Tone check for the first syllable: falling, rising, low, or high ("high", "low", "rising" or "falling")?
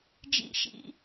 low